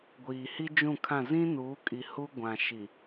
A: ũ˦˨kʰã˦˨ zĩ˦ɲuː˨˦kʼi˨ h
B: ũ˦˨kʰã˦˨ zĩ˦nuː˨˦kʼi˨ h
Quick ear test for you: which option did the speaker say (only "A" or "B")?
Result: B